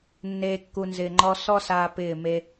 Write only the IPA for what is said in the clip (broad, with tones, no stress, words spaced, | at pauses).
nːeː˨kːu˨nzɪː˨ ŋ͡ǃɔ˦ sɔ˦saː˧ pɪː˦˨me˦